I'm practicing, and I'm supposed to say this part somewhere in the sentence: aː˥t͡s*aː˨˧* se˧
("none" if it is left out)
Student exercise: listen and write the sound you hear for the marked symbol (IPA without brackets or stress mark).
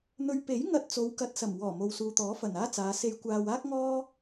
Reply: aː˨˧